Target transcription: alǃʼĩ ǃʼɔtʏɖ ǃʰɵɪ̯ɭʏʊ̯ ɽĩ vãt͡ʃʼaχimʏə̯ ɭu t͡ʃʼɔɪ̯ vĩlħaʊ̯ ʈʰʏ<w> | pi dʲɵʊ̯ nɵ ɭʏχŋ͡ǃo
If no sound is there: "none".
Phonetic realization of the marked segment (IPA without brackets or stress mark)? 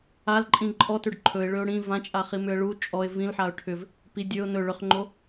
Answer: v